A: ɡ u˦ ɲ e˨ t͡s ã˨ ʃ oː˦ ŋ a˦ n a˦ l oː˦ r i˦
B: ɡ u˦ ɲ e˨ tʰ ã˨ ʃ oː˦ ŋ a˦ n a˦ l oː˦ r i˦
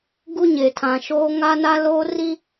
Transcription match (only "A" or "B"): B